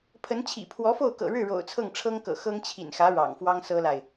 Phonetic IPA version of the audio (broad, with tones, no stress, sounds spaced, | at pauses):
pʰ ə˧˥ n t͡ɕʰ ḭ˨˩ pʰ w ɔ˧˥ f o˥˩ ʊ̯ k ɤ̰˨˩ ɻ ɻ̩˥˩ ɻ o̰˨˩ ʊ̯ t͡sʰ ɤ˥˩ ŋ ʈ͡ʂʰ ɤ˥ ŋ k ɤ̰˨˩ x ɤ˥ ŋ t͡ɕʰ ḭ˨˩ n x ä˧˥ ɻ ɑ̰˨˩ ŋ f w ɑ˥ ŋ s ɤ˥ l a˨ ɪ̯